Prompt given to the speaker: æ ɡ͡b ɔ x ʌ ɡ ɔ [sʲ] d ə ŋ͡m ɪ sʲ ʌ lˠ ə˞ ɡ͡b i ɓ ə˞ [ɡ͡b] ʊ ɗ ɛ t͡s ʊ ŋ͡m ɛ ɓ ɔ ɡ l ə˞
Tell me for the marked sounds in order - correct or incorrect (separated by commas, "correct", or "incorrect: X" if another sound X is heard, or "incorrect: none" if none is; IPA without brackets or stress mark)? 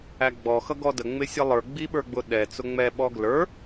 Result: incorrect: none, correct